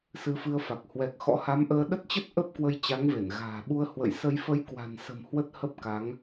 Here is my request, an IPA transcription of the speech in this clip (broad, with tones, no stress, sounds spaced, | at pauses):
s ɨ˧ f ɨ˧ ə̯ f a˨˩ k̚ h w ɛ˨˩ k̚ x ɔ̰˧˥ h a˨˦ m ʔ əː˧ ɗ ə˦˥ t̚ t͡ɕ ə˦˥ t̚ ʔ ə˦˥ p̚ k w ə˧ j t͡ɕ a˨˦ ŋ v e˧˩ n ɣ a̤ː˨˩ ɓ u˧ ə̯ h w ə̰˧˨ j s ə˧ j f ə˨˦ j k w a̤˨˩ n s ə̤˨˩ m h w ə˦˥ t̚ h ə˦˥ p̚ k a˨˦ ŋ